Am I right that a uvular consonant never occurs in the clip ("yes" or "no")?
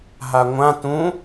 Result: yes